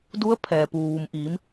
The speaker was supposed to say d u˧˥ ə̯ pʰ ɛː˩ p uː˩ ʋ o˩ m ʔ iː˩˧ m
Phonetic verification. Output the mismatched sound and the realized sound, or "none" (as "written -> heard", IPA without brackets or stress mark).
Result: o˩ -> u˩